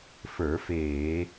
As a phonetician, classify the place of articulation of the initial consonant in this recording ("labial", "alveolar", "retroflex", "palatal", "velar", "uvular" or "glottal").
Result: labial